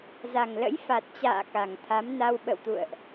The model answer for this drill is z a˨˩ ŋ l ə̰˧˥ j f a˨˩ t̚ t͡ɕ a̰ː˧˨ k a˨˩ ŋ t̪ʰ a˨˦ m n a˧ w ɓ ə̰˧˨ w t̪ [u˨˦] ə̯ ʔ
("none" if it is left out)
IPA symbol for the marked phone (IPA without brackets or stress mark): ṵ˧˨